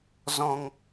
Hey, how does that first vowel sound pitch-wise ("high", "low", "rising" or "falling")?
low